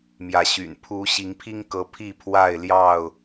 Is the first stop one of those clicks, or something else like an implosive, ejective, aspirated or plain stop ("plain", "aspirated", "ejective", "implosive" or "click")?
aspirated